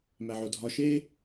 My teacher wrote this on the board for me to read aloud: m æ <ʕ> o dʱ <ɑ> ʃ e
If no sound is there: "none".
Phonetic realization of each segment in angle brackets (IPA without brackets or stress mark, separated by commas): ʕ, ɒ